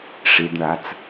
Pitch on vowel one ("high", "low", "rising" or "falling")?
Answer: low